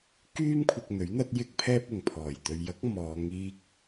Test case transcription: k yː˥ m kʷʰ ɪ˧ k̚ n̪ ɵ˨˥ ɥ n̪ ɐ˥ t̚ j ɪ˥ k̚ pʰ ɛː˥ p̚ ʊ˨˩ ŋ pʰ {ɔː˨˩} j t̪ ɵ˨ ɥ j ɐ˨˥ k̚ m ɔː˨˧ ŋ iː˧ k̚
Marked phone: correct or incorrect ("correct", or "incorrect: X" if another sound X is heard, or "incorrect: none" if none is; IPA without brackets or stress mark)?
correct